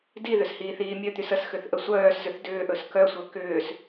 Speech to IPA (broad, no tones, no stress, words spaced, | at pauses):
diðʏs hiːθiːmʲœt̪ys əs xʏθʔəsʷœːszʏθ dʏːʔɵs kœsʷœ kʏːs